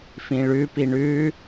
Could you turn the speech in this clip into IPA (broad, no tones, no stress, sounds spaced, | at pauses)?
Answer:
f ĩ ɭ ʉ p i ɳ ʉ